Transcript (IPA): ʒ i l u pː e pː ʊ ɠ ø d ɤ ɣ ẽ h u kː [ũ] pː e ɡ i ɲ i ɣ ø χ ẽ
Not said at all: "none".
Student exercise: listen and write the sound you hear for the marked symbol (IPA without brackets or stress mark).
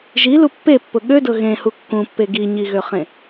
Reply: ũ